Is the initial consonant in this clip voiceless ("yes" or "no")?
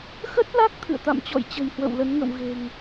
yes